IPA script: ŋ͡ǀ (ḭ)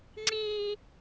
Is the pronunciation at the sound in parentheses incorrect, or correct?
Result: incorrect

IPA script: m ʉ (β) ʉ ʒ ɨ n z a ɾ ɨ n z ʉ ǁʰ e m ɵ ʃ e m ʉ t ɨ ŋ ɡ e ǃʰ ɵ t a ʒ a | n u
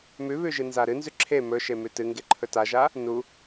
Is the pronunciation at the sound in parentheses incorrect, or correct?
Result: correct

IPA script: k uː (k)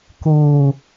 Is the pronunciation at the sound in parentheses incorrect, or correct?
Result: incorrect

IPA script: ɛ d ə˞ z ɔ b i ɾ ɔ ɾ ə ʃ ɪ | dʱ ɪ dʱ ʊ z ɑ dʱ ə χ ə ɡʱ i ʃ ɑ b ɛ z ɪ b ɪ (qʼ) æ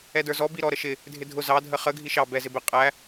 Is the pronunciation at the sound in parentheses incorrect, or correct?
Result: correct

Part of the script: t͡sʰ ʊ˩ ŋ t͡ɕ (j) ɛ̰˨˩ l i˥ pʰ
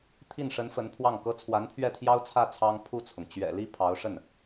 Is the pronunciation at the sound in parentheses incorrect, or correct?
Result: incorrect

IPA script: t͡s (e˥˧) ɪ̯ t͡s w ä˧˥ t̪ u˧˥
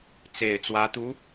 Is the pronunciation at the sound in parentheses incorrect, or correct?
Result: incorrect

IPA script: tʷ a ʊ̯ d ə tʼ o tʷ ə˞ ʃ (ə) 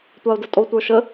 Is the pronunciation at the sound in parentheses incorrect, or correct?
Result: correct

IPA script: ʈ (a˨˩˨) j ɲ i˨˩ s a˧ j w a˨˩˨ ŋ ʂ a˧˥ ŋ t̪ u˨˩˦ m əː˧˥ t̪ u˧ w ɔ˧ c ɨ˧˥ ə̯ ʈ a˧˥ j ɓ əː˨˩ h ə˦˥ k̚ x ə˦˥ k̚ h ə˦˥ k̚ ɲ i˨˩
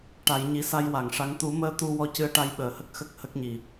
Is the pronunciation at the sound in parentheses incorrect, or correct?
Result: correct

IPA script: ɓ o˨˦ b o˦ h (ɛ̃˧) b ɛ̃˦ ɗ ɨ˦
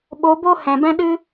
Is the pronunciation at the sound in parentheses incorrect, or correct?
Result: incorrect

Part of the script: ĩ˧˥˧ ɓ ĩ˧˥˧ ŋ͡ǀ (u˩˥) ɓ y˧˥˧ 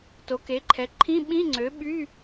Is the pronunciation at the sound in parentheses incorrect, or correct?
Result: incorrect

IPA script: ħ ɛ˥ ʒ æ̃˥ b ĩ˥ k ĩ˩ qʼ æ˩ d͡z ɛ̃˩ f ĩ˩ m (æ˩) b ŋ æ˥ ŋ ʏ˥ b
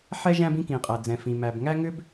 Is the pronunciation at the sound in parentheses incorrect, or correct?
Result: correct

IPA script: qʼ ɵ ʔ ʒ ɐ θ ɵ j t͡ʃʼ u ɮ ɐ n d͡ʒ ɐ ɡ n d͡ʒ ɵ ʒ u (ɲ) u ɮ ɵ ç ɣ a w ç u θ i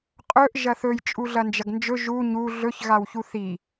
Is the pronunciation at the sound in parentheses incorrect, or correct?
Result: correct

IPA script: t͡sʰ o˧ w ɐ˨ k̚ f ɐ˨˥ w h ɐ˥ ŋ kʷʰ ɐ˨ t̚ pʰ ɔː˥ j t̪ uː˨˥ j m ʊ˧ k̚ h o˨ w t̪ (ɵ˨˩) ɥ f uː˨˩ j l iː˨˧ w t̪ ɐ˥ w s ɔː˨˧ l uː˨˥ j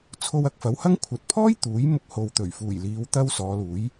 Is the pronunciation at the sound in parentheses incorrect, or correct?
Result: correct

